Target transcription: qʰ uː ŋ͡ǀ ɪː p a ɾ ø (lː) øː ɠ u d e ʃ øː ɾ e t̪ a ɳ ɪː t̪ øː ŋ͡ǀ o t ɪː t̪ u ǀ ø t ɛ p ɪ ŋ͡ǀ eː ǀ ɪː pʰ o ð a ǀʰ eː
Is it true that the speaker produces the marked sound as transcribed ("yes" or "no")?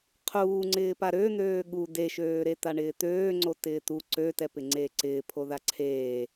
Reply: no